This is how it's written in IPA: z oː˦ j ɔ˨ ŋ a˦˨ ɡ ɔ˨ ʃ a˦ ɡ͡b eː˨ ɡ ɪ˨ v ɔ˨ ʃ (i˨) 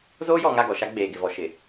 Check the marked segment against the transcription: incorrect: ɪ˨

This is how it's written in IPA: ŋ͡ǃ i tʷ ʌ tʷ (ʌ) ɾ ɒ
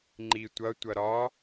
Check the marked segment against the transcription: correct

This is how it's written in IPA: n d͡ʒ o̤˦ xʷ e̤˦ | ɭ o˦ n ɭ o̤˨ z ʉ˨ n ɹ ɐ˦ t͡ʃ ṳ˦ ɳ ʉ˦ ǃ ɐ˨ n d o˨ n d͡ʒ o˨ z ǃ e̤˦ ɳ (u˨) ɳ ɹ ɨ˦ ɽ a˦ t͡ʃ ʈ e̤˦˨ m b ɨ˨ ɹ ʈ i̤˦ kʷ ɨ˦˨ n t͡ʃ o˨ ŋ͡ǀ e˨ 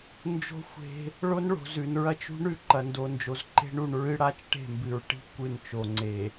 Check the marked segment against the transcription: correct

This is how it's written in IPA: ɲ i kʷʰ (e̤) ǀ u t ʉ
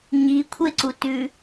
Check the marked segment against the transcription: incorrect: e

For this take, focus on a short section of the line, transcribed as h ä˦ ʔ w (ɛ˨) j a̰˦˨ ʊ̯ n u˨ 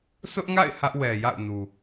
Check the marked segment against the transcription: correct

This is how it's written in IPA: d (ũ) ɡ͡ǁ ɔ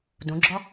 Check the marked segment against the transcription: correct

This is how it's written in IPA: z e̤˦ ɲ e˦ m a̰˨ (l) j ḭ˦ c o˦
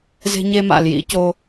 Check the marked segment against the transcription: correct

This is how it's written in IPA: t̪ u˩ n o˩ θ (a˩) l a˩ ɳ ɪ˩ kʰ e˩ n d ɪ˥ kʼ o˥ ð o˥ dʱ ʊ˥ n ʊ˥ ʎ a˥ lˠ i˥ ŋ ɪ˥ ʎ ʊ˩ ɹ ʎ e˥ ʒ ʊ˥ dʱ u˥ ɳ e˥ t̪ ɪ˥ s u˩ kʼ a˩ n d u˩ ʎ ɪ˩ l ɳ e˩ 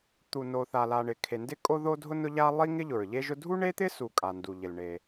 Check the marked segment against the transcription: correct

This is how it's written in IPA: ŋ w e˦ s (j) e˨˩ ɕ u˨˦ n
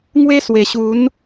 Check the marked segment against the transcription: incorrect: w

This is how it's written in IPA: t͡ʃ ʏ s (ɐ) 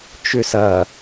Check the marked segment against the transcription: correct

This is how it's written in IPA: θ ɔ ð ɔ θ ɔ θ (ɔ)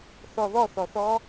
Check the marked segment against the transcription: correct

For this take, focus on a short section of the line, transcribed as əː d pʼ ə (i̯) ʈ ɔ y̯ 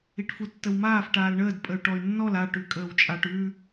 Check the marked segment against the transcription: incorrect: y̯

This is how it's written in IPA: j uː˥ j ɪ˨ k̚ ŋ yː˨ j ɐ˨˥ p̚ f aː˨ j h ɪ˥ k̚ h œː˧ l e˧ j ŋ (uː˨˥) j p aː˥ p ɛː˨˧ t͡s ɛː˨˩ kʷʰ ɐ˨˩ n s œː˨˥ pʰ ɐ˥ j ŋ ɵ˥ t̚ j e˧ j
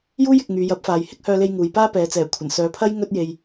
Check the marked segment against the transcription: incorrect: uː˨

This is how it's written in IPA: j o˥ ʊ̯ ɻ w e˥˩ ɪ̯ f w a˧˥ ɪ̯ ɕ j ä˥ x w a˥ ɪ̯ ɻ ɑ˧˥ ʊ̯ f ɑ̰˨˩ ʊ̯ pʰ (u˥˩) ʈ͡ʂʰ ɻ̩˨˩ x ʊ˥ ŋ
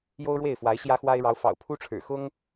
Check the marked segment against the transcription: incorrect: u˥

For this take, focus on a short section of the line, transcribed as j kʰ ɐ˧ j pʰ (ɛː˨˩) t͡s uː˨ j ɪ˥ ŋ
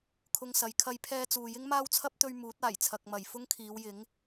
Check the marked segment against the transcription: incorrect: ɛː˧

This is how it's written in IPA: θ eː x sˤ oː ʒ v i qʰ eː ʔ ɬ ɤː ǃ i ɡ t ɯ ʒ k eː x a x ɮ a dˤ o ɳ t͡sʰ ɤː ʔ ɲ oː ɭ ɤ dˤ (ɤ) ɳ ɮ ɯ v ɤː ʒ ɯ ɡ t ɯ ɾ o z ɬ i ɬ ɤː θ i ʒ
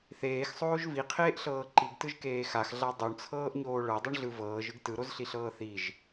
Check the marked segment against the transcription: incorrect: ɯ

